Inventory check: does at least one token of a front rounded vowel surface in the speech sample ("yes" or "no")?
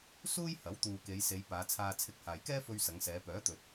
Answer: yes